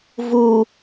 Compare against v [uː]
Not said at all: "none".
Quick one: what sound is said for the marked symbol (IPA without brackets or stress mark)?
uː